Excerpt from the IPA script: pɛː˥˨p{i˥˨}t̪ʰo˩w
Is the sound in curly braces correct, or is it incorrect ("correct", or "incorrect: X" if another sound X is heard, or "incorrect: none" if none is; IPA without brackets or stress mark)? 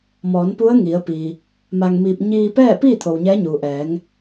incorrect: iː˥˨